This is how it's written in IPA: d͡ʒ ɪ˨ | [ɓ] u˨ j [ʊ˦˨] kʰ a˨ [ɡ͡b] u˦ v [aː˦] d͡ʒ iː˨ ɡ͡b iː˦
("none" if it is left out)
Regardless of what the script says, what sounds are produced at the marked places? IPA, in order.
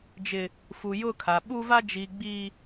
f, ʊ˦˨, ɓ, a˦

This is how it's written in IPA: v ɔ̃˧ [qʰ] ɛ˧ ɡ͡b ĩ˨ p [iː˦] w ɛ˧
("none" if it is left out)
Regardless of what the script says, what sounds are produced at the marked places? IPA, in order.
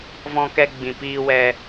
k, iː˧

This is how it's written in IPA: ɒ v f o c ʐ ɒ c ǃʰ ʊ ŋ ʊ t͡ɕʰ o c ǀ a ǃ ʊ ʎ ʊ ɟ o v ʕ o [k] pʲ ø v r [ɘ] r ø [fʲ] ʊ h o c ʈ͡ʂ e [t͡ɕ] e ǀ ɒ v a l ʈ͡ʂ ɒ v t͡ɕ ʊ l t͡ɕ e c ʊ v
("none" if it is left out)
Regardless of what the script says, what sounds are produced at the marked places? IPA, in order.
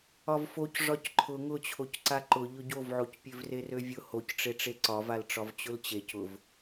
c, e, vʲ, ʈ͡ʂ

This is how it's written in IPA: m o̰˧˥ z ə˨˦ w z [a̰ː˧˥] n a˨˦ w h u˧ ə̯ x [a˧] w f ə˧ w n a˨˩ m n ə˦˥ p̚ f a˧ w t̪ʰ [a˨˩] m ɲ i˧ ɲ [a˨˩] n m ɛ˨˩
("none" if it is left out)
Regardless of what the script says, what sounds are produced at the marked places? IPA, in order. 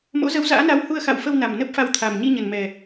a̰ː˧˥, a̰˧˨, a˨˩, ə˨˩

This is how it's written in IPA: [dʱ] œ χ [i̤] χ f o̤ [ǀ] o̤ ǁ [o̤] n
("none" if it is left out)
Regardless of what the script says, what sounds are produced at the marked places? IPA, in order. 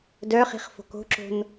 d, i̤, k, o̤

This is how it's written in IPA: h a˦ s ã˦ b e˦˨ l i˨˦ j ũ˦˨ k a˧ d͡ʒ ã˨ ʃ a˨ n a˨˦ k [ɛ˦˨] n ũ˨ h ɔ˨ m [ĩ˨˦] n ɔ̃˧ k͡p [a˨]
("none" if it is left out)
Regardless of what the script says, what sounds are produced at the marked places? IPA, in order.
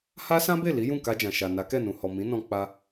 ɛ˦˨, ĩ˨˦, a˧

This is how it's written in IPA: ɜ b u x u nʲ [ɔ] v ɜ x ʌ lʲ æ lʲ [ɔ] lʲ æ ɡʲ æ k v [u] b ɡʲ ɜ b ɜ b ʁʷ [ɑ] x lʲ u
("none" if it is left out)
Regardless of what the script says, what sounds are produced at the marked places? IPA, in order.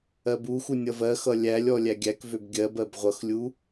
ʌ, ɔ, ø, ʌ

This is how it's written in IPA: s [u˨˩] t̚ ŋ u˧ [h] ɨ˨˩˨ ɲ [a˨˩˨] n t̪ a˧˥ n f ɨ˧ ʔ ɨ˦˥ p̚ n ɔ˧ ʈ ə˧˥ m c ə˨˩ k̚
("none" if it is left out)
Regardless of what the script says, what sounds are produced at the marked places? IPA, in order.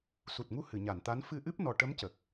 u˨˩, h, a˨˩˨

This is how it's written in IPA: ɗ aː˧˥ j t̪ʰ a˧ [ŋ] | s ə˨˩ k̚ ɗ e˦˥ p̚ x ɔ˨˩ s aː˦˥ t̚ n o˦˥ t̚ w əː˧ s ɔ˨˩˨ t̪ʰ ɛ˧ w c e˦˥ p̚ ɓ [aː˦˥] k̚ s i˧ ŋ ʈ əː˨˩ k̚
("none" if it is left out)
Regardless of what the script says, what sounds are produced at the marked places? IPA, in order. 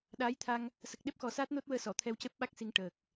ŋ, a˦˥

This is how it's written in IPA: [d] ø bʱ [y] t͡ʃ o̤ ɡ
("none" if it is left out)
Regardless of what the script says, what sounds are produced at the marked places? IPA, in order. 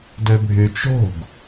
d, y

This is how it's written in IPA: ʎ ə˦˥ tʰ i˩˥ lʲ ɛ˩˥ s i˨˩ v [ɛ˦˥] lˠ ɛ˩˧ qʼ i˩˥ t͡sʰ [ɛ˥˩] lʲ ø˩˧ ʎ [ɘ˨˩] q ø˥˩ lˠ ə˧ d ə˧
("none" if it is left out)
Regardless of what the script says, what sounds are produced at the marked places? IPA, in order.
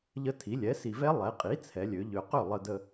ɛ˦˥, ɛ˩˧, ø˨˩

